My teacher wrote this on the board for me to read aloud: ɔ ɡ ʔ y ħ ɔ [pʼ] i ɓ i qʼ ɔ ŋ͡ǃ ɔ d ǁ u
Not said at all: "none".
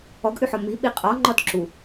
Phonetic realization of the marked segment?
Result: m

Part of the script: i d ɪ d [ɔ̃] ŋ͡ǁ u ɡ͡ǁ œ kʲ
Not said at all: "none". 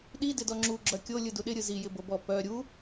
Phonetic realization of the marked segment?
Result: ɔ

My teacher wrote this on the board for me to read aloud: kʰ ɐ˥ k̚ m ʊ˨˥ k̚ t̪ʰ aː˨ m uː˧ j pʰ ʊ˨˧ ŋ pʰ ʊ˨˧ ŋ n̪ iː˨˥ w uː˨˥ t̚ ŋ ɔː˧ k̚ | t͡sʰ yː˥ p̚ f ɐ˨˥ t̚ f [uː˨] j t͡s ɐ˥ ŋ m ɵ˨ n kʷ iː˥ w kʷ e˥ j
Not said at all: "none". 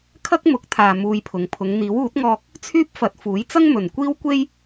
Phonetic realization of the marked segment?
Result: uː˨˥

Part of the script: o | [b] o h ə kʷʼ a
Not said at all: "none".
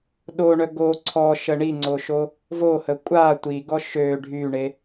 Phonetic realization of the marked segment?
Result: v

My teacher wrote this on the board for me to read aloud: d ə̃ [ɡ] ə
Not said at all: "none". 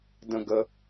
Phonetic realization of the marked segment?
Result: ɡ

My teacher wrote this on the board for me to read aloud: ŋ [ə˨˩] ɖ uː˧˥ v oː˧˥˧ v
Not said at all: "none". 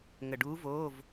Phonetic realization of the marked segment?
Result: ə˨˩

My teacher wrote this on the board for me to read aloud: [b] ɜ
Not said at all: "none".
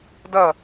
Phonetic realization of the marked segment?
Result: d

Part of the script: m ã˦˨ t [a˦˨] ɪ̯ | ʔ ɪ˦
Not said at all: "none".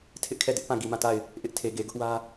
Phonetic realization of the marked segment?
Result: a˦˨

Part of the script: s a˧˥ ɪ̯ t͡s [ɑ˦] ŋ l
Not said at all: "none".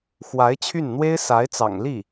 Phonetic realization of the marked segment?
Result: ɑ̰˨˩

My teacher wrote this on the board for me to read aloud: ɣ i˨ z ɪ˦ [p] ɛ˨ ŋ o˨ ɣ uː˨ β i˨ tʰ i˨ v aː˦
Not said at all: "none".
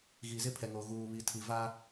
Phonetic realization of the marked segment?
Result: pʰ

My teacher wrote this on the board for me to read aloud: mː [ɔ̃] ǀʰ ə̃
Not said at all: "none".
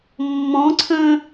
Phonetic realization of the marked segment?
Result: ɔ̃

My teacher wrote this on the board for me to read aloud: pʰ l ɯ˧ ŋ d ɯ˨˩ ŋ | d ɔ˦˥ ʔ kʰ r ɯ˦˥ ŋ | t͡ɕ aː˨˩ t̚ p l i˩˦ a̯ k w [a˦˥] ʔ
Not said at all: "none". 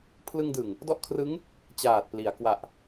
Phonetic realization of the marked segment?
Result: a˨˩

